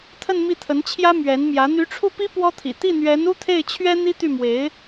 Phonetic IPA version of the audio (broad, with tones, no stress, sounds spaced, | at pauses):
t̪ʰ ə˥˧ n m i˥˩ t̪ʰ ə˧˥ n t͡ɕʰ j ä˥ m ɥ ɛ˧˥ n m j ä˧˥ n̪ y˧˥ ʈ͡ʂʰ u˥˩ p i˥ p w ɔ˥ t̪ʰ ḭ˨˩ t̪ i˥˩ n̪ ɥ ɛ˧˥ n u˥ t̪ʰ e˥˩ ɪ̯ t͡ɕʰ ɥ ɛ˥ n̪ i˥ t̪ y˥˩ m w e˧˥ ɪ̯